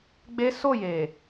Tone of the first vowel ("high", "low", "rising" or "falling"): high